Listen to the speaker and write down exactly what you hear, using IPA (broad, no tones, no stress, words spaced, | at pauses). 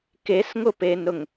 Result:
kesŋʊpenɾʊŋ